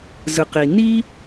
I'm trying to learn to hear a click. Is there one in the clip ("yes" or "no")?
no